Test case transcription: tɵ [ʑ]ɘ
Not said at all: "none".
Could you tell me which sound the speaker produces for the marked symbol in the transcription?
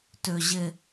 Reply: ʑ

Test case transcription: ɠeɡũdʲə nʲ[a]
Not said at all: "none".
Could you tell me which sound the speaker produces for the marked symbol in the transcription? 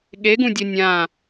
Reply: ã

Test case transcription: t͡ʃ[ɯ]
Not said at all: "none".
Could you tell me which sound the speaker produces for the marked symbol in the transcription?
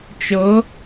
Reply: ɤ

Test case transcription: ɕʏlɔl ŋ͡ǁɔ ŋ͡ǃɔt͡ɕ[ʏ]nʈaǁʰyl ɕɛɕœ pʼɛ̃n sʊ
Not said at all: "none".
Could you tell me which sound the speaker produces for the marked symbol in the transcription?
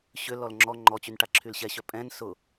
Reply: y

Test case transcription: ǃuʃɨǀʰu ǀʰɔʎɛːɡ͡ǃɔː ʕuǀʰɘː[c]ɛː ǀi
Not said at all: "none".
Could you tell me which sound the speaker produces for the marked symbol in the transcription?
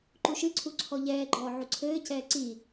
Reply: c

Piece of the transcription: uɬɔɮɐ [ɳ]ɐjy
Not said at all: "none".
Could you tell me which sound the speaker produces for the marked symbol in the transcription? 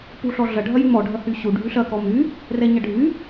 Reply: ɖʱ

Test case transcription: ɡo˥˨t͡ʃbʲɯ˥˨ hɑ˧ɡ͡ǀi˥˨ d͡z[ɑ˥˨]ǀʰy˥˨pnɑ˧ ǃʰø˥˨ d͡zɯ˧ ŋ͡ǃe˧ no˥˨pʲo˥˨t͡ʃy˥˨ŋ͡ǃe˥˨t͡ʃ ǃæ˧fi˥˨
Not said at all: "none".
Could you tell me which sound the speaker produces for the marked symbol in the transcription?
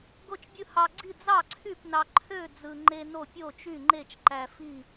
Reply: ɑ˥˨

